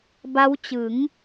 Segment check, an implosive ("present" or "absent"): absent